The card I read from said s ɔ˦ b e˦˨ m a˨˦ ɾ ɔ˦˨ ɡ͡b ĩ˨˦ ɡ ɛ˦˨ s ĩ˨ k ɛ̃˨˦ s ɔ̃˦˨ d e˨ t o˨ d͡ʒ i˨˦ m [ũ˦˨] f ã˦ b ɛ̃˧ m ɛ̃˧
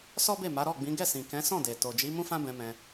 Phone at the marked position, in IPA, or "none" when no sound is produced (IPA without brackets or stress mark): ũ˦